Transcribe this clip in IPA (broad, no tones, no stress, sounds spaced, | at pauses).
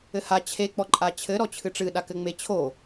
ɘ h a t͡ɕʰ e k͡p ɔ ǃʼ a t͡ɕʰ ɘ ɾ ɔ t͡ɕʰ ɨ ʈ͡ʂ ɨ ɗ a k ɘ ŋ͡m e t͡ɕʰ o